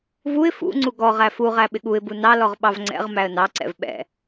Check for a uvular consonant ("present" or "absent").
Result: present